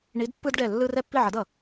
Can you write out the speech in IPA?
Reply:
ɳi˨˥dpːɯ˦dɖɛ˧˩ lːɯ˦rɛ˥˨ pːi˥˨ʕʌ˨˥dʌ˧˩

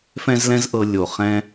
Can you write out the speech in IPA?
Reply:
fɛ̃˦zlɛ̃˦zʔɤ˧ lʲo˨ χɛ̃˦

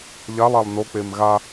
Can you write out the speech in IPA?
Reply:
ʎalˠalˠ nok͡pem ɣa

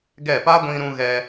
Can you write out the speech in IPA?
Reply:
ɡɛ˦˨ pa˦ɡʷĩ˧ɾũ˧ ɣɛ˧

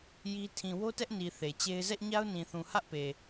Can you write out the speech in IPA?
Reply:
ji˦ tʰĩ˨wo˦tɛ˦ʔ ni˨ θe˨t͡ɕe˦ɪ̯ zɛ˦ʔɲa˦ʊ̯nĩ˨θũ˨ hä˦ʔpe˨

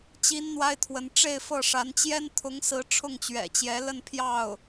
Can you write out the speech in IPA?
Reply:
t͡ɕi˥nn̪wa˥ɪ̯t̪ʰwə˧˥n ʈ͡ʂe˥˧ɪ̯fɤ˥˩ʂa˧˥n t͡ɕjɛ˥nt̪ʰʊ˧˥ŋsɹ̩˧˥ ʈ͡ʂʰʊ˥˩ŋt͡ɕɥɛ̰˨˩t͡ɕjɛ˧˥lə˥˧n pʰjɑ˥˩ʊ̯

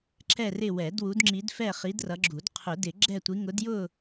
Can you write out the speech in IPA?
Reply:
ǁɛ˦˨rɪ˦˨wɛ˨˩˦d wu˨˦dŋ͡ǁi˨˦dfɛ˦˨χi˨˦d rʌ˨˦ɡ͡ǁu˨˩˦d qʰʊ˨˩˦dɪ˨˩˦ ɡ͡ǁɛ˦˨tʷi˨˦ ŋʊ˨˦djʊ˦˨

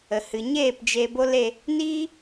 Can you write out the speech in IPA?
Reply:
ə˨hɨ˨ɲeː˦˨p d͡ʒe˧bo˦l e˧ | niː˦

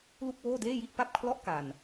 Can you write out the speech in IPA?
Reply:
lu˥˩k̚woː˥˩deː˥˩ji˥˩ʔ pa˥˩p̚kʰlɔ˥˩ʔ ka˧n

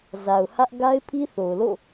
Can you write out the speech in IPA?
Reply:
za˨ʊ̯hä˦ʔ ɡa˦ɪ̯pʰi˦θo˨ʊ̯lo̰˦˨

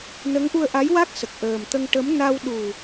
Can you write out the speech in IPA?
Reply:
nə˧˥ŋʔu˧ə̯ʔa˧˥jwa˦˥k̚ sə˨˩k̚ʔəː˨˩mt̪ə˧ŋ ʈə˧˥m na˧wɗu˨˩

